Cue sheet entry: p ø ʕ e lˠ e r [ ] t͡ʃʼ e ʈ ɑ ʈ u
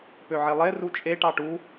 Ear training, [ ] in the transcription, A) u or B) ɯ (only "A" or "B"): A